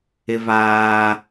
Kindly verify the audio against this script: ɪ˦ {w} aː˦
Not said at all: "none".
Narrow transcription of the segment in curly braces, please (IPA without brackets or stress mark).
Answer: v